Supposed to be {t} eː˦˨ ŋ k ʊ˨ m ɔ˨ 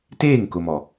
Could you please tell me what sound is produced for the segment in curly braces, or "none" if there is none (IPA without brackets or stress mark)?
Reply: t